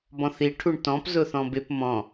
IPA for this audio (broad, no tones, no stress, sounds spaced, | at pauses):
b ɔ̃ θ i ʈʰ u ɳ t ɔ̃ p z ʊ θ ɔ̃ b ɪ p m ɔ̃